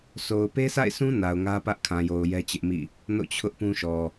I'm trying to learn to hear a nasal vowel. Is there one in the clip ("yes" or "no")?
yes